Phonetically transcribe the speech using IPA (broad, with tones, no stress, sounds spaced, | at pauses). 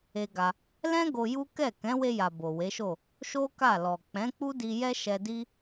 e˦ ɡ a˧ | l ɛ̃˦ ɡ o˧ j u˦ k ɛ˦˨ k ɛ̃˨˦ w e˧ j a˨ b o˨ w e˨˦ ʃ o˦˨ | ʃ o˦ k a˦˨ l ɔ˨ k͡p ɛ̃˨˦ k͡p u˦ d i˧ j ɛ˦ ʃ ɛ˧ d i˦